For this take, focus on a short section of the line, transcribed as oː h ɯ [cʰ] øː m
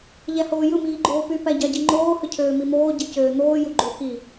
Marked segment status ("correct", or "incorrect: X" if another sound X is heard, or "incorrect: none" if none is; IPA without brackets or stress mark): correct